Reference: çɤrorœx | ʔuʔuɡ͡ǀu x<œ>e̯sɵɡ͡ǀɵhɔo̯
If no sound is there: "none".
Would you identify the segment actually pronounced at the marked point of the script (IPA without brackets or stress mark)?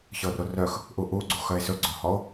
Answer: œ